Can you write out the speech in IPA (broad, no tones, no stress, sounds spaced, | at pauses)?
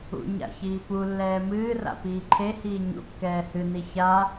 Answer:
ṵ ɲ a̰ ç iː p u lː ɛː m ɨː r a̰ p iː ǃʰ e h iː ɲ ṵ kː ɛː h ɨ n i ç a